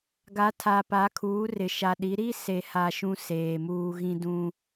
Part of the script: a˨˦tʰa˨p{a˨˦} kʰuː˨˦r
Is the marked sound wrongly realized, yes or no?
no